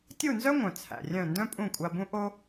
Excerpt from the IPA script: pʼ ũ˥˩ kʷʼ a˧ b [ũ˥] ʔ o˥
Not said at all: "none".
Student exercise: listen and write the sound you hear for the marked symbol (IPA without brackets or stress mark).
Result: ũ˥